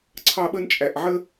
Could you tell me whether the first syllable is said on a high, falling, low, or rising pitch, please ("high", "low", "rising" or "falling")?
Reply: high